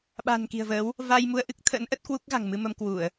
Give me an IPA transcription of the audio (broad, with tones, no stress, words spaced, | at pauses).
ɓa̤˨˩n ki̤˨˩ə̯vəː˨˦w | va˧jmu˧ə̯ʔɨ˦˥k̚t̪ʰə̰ː˧˥n ʔə˦˥t̚kwu˦˥k̚ ɣa̤˨˩ŋmɨ˧mə˧m kwu˧˩˨ə̯